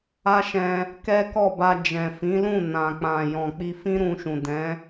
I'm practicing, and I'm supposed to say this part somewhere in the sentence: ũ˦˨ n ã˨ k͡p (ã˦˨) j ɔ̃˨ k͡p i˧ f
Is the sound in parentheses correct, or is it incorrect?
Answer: incorrect